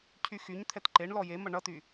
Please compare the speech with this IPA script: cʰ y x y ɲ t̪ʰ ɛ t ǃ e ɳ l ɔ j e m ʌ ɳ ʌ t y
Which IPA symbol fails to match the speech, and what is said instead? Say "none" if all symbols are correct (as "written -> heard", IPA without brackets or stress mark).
none